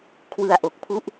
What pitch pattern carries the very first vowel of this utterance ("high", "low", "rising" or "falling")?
low